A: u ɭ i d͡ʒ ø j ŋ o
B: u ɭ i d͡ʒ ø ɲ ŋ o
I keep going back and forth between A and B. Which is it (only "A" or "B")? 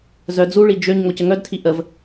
B